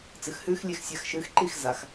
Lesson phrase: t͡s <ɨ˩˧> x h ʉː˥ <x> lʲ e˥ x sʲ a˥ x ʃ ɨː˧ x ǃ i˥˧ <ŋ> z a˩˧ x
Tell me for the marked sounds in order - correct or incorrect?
correct, correct, incorrect: x

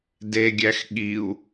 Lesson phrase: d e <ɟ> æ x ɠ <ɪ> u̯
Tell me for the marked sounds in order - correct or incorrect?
incorrect: ɡʲ, incorrect: i

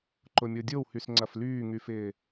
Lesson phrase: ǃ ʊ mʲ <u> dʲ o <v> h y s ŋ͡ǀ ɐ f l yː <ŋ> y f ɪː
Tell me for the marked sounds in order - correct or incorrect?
incorrect: o, incorrect: w, correct

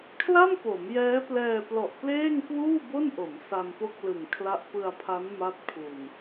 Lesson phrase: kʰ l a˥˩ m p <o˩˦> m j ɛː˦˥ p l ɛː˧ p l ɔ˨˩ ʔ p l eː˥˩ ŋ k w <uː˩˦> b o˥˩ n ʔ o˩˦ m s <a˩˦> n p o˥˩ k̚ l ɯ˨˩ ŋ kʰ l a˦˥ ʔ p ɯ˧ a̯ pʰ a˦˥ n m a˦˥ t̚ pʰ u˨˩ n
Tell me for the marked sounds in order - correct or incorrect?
correct, incorrect: uː˥˩, incorrect: a˧

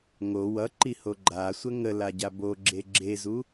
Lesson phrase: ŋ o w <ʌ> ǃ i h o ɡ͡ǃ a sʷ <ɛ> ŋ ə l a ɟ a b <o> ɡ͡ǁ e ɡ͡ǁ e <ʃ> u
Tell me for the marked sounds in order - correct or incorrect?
correct, incorrect: ə, correct, incorrect: z

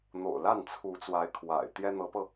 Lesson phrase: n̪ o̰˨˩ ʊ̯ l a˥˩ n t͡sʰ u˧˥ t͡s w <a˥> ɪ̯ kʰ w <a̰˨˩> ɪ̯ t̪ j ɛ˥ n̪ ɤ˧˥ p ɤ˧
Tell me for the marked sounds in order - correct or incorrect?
incorrect: a˧˥, correct

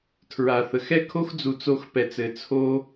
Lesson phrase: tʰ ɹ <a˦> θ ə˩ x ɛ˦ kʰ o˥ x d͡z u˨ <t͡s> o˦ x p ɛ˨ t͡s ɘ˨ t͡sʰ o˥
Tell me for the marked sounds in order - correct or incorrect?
incorrect: a˩, correct

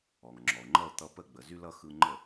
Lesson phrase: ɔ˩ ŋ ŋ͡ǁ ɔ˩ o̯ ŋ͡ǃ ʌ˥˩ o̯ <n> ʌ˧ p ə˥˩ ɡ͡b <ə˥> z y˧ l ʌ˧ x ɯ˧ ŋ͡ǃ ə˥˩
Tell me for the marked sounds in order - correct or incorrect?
incorrect: t̪, incorrect: ə˩

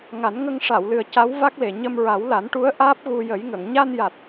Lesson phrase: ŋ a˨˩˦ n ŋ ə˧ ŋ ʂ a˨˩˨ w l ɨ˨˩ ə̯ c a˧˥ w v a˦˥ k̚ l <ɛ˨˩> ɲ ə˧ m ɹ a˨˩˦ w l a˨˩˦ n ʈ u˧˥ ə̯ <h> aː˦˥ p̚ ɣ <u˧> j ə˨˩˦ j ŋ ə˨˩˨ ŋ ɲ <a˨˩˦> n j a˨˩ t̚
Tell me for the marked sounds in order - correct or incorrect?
incorrect: e˨˩, incorrect: ʔ, correct, incorrect: a˧

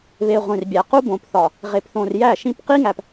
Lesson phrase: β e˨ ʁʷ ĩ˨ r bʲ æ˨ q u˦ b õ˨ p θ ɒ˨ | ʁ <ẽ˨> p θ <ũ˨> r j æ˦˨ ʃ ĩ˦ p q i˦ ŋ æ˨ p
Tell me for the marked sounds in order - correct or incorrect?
incorrect: e˨, incorrect: õ˨

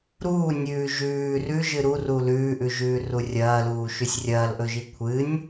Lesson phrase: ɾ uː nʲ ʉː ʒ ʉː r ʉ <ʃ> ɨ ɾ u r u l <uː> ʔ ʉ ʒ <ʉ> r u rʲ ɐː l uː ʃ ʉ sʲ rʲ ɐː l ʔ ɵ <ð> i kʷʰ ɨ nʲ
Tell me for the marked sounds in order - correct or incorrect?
incorrect: ʒ, incorrect: ʉː, incorrect: ʉː, incorrect: ʒ

